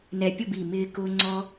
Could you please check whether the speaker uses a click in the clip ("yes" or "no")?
yes